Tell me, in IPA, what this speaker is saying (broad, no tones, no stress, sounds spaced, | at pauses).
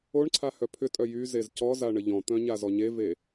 o ɳ ǀʰ a h œ pʰ ʏ tʼ œ j y z e z c ɔ z a ɳ ə ʎ ɔ̃ t̪ œ̃ ɲ a z ɔ ɲ e v e